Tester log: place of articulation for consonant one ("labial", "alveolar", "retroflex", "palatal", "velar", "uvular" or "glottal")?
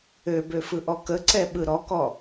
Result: labial